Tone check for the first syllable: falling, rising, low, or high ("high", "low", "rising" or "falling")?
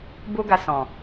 high